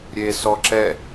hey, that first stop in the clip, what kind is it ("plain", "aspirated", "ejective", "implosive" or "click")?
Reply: click